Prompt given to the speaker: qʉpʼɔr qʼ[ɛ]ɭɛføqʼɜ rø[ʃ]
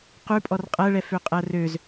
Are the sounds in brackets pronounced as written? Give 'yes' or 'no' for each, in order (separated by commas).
no, no